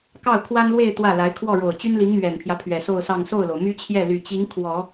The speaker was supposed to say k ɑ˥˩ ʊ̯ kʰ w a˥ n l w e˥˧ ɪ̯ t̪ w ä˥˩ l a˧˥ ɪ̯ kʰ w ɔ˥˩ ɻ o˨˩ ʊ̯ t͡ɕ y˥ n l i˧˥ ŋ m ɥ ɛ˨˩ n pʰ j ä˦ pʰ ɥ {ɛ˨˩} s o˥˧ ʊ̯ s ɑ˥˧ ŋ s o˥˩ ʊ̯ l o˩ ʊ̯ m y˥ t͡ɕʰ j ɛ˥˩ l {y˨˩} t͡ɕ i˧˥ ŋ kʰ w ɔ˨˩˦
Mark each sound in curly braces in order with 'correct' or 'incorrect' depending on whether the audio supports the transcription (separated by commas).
correct, correct